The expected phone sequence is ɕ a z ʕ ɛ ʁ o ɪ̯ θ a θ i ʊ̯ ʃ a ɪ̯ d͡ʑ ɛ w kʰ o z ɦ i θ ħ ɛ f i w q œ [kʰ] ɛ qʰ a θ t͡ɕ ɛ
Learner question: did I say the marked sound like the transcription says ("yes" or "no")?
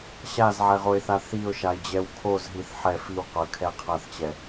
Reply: yes